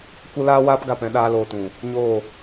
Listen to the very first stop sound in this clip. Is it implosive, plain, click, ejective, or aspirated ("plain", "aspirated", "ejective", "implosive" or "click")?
plain